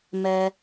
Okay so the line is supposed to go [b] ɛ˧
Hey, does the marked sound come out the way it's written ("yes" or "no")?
no